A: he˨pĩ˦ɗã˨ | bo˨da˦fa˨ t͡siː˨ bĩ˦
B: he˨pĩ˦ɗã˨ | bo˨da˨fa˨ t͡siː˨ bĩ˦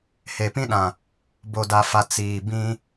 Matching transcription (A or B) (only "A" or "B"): B